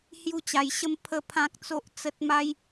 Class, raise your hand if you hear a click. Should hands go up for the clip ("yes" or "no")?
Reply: no